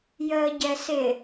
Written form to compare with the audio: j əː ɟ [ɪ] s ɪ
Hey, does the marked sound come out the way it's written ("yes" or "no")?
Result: no